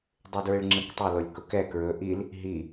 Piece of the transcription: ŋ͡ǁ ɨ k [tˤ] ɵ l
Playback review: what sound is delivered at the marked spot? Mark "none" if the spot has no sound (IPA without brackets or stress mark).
tˤ